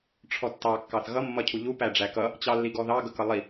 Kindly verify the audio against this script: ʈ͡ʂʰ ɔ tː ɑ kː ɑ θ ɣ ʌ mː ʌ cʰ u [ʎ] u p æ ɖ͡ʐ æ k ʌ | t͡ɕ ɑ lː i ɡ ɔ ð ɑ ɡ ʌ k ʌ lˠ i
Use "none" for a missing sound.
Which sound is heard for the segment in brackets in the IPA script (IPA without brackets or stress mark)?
ʎ